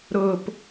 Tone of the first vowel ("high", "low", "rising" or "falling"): low